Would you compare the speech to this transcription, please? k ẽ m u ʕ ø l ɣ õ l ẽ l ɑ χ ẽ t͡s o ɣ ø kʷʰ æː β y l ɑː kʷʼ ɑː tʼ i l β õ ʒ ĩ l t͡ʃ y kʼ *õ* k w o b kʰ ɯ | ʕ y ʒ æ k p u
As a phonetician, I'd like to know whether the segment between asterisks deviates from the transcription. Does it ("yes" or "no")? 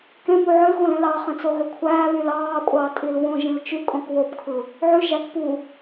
no